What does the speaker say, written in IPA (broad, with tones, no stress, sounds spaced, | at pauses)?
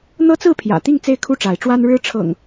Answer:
n̪ ɤ˦ t͡s ɹ̩˥˨ pʰ j ä̰˨˩ t̪ i˥˨ ŋ t͡s e˥˨ ɪ̯ kʰ u˥˨ ʈ͡ʂ a˨˦ ɪ̯ ʈ͡ʂ w a˦ n ɻ ɻ̩˦ ʈ͡ʂʰ ɤ̰˨˩ ŋ